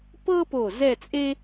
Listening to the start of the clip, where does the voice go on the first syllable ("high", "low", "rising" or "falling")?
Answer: high